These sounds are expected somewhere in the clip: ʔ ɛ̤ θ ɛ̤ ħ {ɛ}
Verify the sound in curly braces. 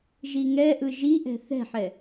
correct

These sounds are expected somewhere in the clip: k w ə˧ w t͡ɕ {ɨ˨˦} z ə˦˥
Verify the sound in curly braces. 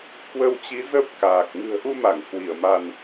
incorrect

